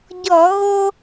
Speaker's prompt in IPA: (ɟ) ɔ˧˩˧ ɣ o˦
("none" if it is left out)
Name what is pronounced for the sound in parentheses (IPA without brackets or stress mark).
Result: ɟ